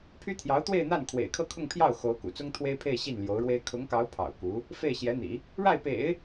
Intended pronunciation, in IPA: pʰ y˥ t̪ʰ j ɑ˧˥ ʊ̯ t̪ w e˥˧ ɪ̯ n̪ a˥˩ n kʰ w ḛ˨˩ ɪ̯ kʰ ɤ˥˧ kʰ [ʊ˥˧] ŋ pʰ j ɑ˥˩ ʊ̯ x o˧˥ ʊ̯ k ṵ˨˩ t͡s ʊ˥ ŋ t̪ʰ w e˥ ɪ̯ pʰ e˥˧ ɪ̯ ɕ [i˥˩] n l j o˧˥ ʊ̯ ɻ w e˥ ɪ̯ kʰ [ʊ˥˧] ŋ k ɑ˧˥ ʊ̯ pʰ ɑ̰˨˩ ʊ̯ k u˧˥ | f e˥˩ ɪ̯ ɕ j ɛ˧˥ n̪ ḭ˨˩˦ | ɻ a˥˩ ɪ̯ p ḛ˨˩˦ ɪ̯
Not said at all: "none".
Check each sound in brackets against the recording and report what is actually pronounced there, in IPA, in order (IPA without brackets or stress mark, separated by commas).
ʊ˥˧, i˥˩, ʊ˧˥